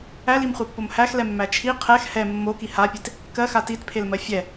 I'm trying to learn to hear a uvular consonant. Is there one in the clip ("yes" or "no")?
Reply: yes